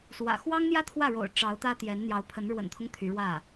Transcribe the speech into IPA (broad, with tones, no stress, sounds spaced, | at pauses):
s w ä̰˨˩ x w ɑ˥ ŋ n̪ j ä˥ t̪ʰ w ä˥˩ ɻ o̰˨˩ ʊ̯ ʈ͡ʂ ɑ˧˥ ʊ̯ t̪ ä˥ t̪ j ɛ˧˥ n n̪ j ɑ˧˥ ʊ̯ pʰ ə˧˥ n ɻ w ə̰˨˩ n t̪ʰ ʊ˦ ŋ t̪ʰ y˧˥ ɻ w ä˥˩